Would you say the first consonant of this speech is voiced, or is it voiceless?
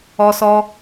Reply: voiceless